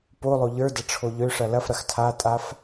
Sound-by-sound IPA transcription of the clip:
polˠo ʎə˞dɐ ʈ͡ʂʰoʎøʂɐ lɐfɾɐx tʰatʼaf

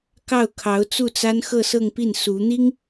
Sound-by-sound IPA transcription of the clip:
kɑ˥˩ʊ̯ kʰɑ˧˥ʊ̯t͡su˥˩t͡sa˥n xɤ˥˧sɤ˥˧ŋpi˥˩n su˧˥n̪i˥ŋ

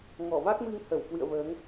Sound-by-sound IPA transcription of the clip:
ŋɔ˧˩va˦˥k̚mɨ˧ŋ hə˧˩wkwɨ̰˧˨ə̯vəː˨˦ŋ

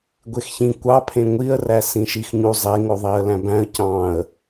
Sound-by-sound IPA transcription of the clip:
ɡʷexçĩ kʷɑpʰẽ ŋʷiə̯ræ sĩʃixɲu zˤeŋoðˤiə̯læ̃ bæ̃ə̯ cɑ̃ə̯

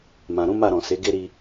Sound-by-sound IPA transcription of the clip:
mã˨ɾũ˨˦ ma˦˨ɾɔ̃˨ se˨˦ɡe˦ ɾi˧

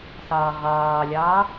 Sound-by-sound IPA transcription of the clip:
sɑːʁɑːlʲɑː

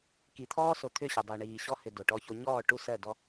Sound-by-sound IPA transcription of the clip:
ki˨t̪ʰɔː˦so˨ t̪ʰʏ˦˨ɕɐ˨dˤo˨ ɳiː˨ɕɔ˦hʏ˨ do˨ʈɔ˦ço˦ ɲɔː˦˨ ʈu˦ sɜ˦˨dɔ˦

